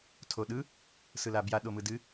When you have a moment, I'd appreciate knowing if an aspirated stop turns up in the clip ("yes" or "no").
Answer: yes